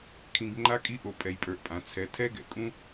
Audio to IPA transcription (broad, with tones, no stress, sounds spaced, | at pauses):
kʰ ĩ˧ ɡ ŋ͡ǃ a˦ kʼ i˦ ʔ o˧ pʼ ɛ˧ j pʼ ə˞˧ ʔ pʼ ã˨˦ t͡sʰ ɛ˨˦ tʰ ɛ˦ ɡ ɛ̰˨ kʼ ũ˦